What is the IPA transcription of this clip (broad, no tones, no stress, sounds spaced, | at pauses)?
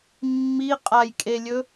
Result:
mː i qʼ a j kʼ e lʲ ɵ